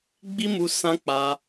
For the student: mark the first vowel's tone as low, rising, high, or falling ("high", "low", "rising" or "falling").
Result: high